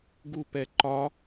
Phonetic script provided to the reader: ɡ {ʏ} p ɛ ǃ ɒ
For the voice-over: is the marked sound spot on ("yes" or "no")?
no